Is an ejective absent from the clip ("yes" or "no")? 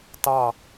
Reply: yes